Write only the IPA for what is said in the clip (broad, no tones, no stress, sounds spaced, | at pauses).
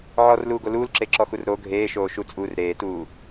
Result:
ʕ ɔ r l uː ɡ o l uː l ǁ e ǁ ɔ x u r ɾ o ɡʱ eː ʃ oː ʃ u t͡sʼ uː r ɾ eː t uː